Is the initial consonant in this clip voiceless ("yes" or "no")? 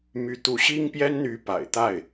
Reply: no